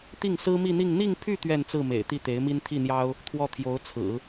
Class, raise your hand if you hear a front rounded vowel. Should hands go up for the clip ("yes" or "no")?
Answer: yes